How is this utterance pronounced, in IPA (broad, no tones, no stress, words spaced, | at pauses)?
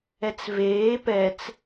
ɛt͡sveː pɛt͡s